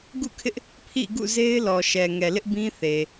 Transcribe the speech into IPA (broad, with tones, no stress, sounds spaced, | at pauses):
ɡ ṵ˦˨ kʰ ɪ˦ ʔ | pʰ ḭ˦˨ ɡ ṵ˦˨ z e˦ ɪ̯ l ɔ˨ ʃ ɛ˨ ŋ ɛ˨ l ɪ˦ ʔ b ĩ˦ θ e˨